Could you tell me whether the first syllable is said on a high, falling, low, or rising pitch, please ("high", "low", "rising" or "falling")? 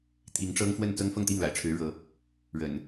rising